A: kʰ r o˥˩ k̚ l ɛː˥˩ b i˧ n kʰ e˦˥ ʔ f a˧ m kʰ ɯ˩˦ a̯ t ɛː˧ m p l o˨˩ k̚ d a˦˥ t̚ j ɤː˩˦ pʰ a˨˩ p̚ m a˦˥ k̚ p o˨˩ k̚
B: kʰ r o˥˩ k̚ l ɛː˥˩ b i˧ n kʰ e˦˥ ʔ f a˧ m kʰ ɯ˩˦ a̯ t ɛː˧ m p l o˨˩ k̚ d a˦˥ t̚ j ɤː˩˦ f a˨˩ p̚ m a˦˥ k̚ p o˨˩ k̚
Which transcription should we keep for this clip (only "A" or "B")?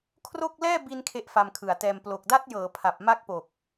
A